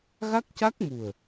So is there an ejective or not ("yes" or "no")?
no